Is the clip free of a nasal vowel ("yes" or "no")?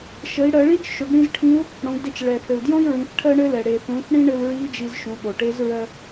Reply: no